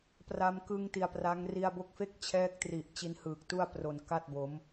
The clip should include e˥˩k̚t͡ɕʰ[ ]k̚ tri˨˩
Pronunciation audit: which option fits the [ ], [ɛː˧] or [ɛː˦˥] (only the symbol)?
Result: ɛː˦˥